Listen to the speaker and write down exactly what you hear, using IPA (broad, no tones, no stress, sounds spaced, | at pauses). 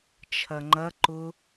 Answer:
t͡ʃʰ ɐ ŋ͡ǃ ɐ ǃ ʊ